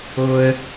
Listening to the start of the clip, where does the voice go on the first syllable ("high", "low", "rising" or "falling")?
low